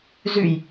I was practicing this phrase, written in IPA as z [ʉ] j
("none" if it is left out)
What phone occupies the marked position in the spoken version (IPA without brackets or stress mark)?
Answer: ʉ